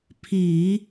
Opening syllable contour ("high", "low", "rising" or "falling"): low